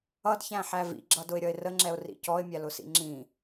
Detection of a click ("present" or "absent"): present